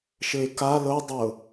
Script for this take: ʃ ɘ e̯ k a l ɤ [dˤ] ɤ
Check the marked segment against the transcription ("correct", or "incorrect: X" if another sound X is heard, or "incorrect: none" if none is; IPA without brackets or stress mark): correct